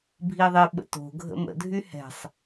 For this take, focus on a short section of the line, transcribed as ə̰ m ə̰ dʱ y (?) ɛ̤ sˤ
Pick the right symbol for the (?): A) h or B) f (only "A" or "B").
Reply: A